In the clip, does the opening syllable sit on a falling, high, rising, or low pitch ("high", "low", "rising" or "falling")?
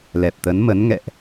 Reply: low